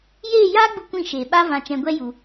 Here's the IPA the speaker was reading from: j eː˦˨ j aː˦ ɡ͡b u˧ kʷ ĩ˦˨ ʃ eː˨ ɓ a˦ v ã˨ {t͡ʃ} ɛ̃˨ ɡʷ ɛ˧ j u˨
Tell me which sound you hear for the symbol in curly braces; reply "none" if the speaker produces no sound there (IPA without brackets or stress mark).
t͡ʃ